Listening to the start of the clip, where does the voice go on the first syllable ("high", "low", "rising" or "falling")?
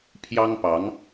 high